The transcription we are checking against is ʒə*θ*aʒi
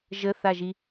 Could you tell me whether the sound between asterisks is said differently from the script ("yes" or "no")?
no